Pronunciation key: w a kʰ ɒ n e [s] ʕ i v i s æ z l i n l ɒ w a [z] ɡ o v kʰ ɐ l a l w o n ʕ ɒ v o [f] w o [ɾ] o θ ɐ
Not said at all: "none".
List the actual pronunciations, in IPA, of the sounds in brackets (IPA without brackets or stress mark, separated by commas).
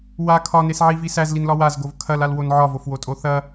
s, z, f, tʼ